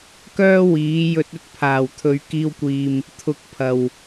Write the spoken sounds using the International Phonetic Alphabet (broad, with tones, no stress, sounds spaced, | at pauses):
k œː˥ w iː˨˥ j ɵ˧ t̚ ɵ˥ t̚ pʰ aː˨˩ w t̪ʰ ɵ˨ ɥ k iː˧ w kʷ iː˨ m | t̪ʰ ʊ˨ k̚ pʰ ɐ˨˩ w